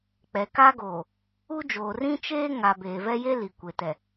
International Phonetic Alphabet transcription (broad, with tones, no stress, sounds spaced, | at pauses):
k͡p ɛ˨ k a˦ ɡ oː˨ | u˦ d͡ʒ oː˨ r ĩ˦ t͡ʃ eː˦ ŋ a˨ b eː˨ v ɛ˦ j e˦ l i˨ kʷ e˨ t ɛ˨